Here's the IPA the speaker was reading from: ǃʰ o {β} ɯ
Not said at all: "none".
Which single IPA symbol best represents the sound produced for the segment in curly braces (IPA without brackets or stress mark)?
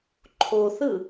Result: θ